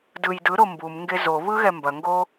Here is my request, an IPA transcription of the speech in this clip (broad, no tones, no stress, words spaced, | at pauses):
dɯj dɯɾo mbumŋɡe zoβɯɣɛ mbɐŋɡo